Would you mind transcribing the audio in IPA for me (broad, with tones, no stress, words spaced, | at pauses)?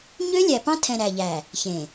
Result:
ɲø˦lʲæ˨pɑ̃˦ tʰɛ̃˨ ɾæ˨ʎæ˨ | çẽ˨